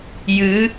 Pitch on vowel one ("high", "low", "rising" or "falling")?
rising